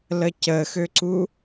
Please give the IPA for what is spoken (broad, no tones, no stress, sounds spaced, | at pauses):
l ə c ə x ø ǀ u